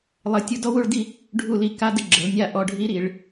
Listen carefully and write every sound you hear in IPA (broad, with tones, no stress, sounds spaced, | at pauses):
lˠ ə˧˥˧ tʲ u˦˥ d ɔ˦˥ w u˥˧ ɭ d i˥˧ | ɖʱ u˥˧ l i˧˥˧ k a˧˥˧ d ə˥˧ ɡ͡ǁ ə˨˦ l nʲ a˥˧ ʔ ɔ˧˥˧ ɖʱ i˦˥ ɾ i˨˦ ɭ